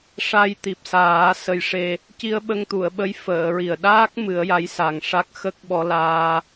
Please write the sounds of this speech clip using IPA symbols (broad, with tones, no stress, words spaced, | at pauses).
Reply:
ʂa˧jt̪i˨˩p̚saː˨˩˦ sə˧jʂe˧ | ci˧ə̯ɓə˧ŋt̪u˨˩˨ə̯ɓə˧˥j fəː˨˩˨ɹi˨˩ə̯ɗaː˦˥k̚ mɨ˨˩˦ə̯ja˧˥jsa˨˩ŋʂa˦˥k̚ xə˦˥k̚ɓɔ˧laː˧